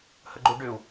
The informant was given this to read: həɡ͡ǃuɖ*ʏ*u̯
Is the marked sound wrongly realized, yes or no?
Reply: no